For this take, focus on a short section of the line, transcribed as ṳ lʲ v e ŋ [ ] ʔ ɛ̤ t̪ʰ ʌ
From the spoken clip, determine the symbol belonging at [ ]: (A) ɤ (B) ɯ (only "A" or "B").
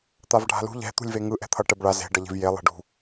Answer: B